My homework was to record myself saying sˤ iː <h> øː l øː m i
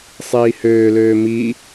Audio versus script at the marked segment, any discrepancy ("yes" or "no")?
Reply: no